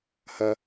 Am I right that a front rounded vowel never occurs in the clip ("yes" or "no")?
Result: yes